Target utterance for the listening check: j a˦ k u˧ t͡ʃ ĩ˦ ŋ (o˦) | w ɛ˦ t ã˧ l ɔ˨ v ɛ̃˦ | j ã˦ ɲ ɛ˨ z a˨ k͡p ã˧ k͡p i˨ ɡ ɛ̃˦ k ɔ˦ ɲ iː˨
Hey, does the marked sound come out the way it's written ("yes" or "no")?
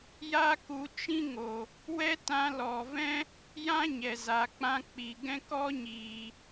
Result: no